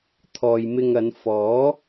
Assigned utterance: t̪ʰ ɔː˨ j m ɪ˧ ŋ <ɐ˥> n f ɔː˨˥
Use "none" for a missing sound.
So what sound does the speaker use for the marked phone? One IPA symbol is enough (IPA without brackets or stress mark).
ɐ˨˧